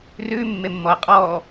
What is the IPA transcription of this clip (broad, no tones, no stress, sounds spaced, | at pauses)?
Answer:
r ʉ mː e mː ɔ ɐ̯ qʼ ɔ